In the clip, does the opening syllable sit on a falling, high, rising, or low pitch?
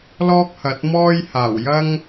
high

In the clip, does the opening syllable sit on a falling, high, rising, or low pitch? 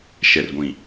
low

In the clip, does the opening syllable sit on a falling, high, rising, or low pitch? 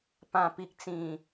low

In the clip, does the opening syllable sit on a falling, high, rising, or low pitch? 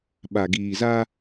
low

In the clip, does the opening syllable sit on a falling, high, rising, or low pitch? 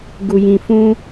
low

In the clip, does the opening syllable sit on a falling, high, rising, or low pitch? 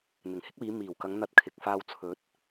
low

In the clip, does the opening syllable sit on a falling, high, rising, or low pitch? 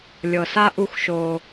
low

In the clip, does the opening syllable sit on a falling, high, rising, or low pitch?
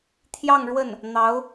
falling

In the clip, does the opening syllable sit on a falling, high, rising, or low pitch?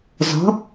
rising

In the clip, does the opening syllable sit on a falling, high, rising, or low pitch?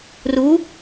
rising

